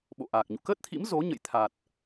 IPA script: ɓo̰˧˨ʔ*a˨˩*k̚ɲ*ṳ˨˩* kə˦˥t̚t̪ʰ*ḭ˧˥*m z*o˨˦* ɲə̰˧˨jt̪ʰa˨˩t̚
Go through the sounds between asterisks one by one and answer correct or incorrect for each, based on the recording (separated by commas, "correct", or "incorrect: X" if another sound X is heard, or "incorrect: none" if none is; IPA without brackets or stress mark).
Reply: incorrect: aː˨˩, incorrect: ṵ˧˨, correct, correct